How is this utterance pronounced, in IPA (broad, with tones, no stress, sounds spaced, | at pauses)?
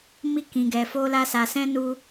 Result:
m i˦ k ĩ˧ ɡ ɛ˧ f o˦ l a˦ s a˧ s ɛ̃˦ n u˦